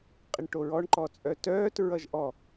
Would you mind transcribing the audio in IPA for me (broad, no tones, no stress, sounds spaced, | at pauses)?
qʼ ɪ ɳ ʈ o ɹ ɔ ɳ ǃ ɔ t͡sʼ œ t œː t ɹ ʌ ʒ ʔ ɔ